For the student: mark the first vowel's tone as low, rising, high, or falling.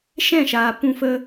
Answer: falling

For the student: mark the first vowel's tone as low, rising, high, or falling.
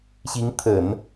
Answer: rising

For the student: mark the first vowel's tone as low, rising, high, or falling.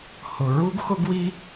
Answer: low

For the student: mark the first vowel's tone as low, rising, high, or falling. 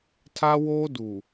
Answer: high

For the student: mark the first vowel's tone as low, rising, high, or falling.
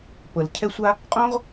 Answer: low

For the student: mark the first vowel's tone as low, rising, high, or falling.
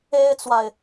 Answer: high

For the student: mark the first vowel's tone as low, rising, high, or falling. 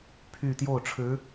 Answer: falling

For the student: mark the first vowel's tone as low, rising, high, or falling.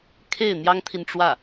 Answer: falling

